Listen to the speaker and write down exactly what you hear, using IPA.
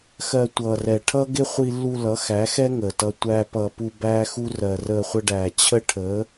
xɜ˧tʷʌː˨rɛ˨ ʈʰʌ˦ ɡɪ˦χʷi˧lːu˧ lʌ˨˦xæ˨˦xɛ˦ ŋəː˨tʌ˧ tʷæ˧ pʌ˨ pu˧bæː˦xu˦ rɜ˨rəː˧χʷə˧ɖæː˨ t͡ɕʰə˦ʈʰəː˨˦

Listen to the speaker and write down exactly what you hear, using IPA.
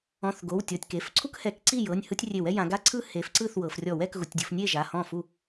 ɔ̃˩˧˩θ ɡo˩˧˩wtʲɔ˩˧˩tʲke˩˧˩f ǀʰu˦khɛ˩˥k ǀi˥˩jɤ˩˧˩nʲ hɯ˦tʲrʲe˧˩˧wɛ˦ jã˩˧ɡa˦ǀʰɯ˦ he˩˥fǀɯ˥˩θwɤ˩˧f rʲɔ˧˩˧wɛ˩˧k ɣu˩˧tʲdʲo˩˧fnʲe˥˩ʒa˩˧˩ hɔ̃˥˩fu˥˩

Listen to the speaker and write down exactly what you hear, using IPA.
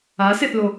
aseθlo

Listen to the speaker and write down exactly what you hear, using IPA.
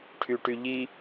ʈʰyʈyʎi

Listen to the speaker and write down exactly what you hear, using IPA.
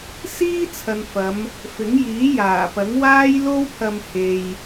siː˥ t͡sʰɐ˨nfɐ˨˧m | fɪ˨˥ŋjiː˨˥jaː˨˩ pɐ˨˥ŋ waː˥j lo˥wpʰɐ˧m he˨j

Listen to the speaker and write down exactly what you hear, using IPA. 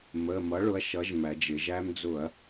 mə˩˧˩mʌ˩˥ ɭʊ˩˥ɐ̯ʃʌ˩˥ʒmæ˩˧d͡ʒɪ˩˧ ʒæ˧md͡zʊ˧˩˧ɐ̯

